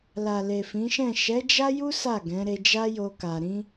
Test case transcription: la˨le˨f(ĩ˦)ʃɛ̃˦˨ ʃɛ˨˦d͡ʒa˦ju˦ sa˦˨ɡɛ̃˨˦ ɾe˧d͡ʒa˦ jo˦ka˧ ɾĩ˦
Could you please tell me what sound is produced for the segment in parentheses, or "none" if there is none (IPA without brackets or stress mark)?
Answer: ĩ˨˦